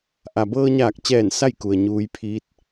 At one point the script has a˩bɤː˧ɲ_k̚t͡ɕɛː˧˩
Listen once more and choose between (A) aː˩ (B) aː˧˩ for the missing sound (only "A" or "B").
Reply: B